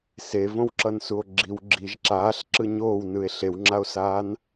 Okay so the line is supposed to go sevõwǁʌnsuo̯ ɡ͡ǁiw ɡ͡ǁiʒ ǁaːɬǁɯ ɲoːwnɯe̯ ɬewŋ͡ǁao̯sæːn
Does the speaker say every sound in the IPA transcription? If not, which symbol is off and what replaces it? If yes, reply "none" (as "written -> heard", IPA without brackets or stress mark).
æː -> aː